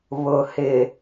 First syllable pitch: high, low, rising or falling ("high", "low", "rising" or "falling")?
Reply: low